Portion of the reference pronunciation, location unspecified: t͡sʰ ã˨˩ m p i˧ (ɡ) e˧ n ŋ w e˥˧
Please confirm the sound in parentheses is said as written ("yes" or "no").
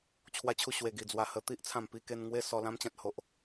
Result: no